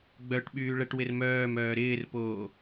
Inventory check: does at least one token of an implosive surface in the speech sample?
yes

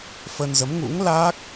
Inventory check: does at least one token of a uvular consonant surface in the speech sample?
no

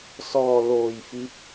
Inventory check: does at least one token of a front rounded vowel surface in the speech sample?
no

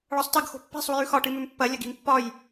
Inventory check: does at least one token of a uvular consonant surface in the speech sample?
no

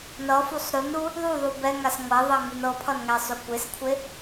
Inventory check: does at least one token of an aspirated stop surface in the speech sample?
yes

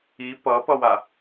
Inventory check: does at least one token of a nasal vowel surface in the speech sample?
no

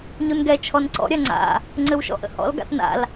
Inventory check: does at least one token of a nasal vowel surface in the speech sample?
no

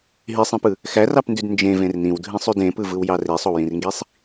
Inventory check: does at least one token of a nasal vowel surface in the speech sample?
yes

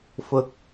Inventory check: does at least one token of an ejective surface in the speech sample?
no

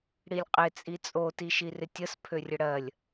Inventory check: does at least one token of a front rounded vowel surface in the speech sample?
yes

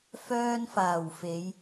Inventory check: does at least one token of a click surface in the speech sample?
no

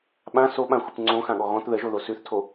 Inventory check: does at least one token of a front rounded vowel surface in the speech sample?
no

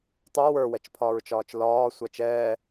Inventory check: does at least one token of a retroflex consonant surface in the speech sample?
no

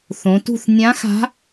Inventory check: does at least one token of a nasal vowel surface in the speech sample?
yes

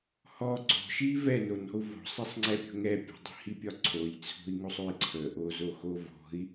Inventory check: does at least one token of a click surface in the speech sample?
yes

